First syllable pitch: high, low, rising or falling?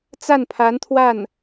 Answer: falling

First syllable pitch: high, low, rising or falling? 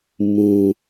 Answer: low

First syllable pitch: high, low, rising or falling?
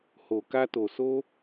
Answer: low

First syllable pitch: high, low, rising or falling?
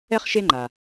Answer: high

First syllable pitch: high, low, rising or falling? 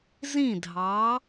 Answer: falling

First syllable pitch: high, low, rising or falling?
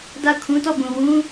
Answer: falling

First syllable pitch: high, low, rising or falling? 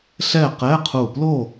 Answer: falling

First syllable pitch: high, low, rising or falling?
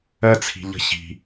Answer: high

